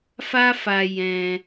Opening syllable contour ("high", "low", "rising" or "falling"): high